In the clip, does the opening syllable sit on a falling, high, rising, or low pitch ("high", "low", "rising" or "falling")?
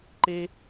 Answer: high